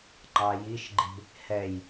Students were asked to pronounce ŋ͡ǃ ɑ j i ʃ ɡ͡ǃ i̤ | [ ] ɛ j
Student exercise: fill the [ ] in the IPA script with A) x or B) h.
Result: B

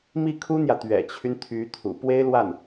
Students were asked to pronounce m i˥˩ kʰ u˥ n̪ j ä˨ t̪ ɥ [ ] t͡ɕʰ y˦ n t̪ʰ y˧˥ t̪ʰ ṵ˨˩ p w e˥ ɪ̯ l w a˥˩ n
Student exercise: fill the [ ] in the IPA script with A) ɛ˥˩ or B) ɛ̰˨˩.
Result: B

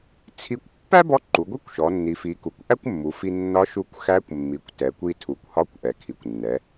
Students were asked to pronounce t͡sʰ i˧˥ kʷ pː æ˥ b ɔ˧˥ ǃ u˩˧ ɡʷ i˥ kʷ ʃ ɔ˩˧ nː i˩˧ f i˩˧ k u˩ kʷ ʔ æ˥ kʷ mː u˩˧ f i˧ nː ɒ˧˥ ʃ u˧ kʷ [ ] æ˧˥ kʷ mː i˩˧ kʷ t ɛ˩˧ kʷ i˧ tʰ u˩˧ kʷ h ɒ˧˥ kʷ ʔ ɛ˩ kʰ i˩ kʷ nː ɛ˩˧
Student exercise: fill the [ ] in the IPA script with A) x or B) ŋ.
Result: A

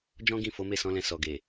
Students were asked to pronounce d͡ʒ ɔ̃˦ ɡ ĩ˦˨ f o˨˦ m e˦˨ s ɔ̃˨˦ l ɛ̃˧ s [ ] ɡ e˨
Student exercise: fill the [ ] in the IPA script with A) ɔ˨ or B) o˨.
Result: A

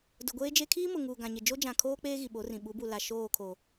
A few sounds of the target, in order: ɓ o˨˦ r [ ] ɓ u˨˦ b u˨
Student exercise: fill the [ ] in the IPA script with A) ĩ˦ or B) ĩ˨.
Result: B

